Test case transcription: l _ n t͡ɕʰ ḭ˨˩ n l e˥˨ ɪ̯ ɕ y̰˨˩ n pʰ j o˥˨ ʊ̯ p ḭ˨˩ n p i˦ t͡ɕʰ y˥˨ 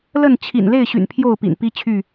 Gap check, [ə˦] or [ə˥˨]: ə˥˨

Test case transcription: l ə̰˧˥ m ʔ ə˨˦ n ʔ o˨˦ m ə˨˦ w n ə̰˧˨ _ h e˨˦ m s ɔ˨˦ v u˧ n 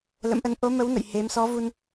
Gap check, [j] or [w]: j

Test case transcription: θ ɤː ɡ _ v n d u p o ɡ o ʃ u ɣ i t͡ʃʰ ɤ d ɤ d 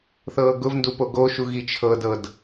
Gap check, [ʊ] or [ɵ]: ʊ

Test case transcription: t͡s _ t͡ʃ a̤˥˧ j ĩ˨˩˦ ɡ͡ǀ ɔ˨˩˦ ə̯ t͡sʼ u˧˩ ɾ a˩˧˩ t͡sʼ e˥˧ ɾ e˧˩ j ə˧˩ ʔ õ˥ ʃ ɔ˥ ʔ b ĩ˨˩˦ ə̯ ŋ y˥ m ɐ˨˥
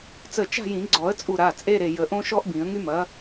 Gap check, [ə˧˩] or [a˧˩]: ə˧˩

